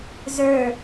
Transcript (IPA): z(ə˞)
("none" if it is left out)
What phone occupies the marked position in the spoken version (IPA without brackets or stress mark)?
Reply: ə˞